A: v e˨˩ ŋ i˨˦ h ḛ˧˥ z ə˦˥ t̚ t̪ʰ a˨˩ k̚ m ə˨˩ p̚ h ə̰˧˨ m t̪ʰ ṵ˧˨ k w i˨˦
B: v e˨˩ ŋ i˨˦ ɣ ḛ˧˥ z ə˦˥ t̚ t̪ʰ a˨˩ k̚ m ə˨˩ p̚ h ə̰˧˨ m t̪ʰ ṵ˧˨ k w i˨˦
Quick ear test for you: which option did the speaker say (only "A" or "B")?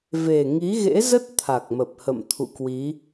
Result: B